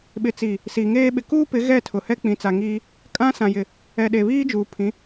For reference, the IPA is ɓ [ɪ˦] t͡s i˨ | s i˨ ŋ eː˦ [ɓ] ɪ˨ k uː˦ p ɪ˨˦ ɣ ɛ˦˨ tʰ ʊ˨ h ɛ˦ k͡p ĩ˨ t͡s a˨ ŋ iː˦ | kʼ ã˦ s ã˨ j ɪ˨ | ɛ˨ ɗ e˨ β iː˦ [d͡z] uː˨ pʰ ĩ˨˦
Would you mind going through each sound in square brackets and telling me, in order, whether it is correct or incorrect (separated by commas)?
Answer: incorrect, correct, incorrect